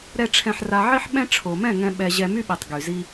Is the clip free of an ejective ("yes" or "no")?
yes